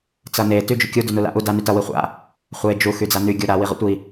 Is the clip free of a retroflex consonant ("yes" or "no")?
yes